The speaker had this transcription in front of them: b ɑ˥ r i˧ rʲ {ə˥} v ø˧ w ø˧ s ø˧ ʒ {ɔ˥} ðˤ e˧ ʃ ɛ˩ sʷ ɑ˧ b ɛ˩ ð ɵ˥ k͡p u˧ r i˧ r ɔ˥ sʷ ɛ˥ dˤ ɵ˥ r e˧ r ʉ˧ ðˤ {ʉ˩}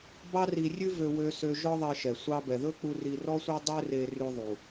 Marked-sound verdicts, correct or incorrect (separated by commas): incorrect, correct, incorrect